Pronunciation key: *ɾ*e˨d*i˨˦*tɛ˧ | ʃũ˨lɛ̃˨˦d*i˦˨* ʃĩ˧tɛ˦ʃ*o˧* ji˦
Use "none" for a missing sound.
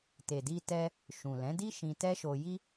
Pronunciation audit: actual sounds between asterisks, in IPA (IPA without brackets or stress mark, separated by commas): t, i˧, i˦, o˧